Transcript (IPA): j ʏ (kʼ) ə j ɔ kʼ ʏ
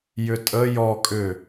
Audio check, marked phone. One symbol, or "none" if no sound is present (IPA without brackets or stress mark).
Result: tʼ